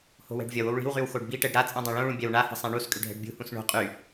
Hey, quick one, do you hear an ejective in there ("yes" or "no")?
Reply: yes